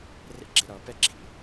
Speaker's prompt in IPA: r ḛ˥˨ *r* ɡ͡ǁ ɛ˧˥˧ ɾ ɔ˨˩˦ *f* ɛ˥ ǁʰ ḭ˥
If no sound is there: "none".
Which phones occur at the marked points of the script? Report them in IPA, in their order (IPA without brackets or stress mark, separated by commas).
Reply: none, p